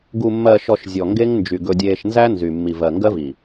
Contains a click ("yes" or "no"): no